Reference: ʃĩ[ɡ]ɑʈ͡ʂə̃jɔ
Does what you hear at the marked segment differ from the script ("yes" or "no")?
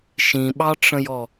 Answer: yes